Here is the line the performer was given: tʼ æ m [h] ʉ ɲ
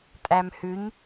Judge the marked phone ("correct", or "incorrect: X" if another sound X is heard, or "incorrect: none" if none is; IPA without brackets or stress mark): correct